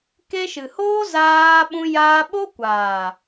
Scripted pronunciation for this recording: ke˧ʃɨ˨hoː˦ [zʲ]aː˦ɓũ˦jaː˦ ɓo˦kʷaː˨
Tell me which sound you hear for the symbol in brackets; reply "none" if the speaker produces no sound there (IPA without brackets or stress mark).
z